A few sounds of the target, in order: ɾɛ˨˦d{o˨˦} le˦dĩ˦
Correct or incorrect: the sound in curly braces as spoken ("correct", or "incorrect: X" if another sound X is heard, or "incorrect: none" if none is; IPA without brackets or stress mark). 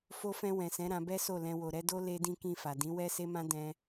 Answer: incorrect: o˦